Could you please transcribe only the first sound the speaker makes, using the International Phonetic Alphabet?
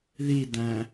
ð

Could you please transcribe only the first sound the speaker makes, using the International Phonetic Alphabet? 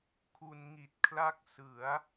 kʰ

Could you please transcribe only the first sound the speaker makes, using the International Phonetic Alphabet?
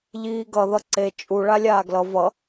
ʎ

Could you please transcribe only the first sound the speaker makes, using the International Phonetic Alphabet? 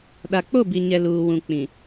ɗ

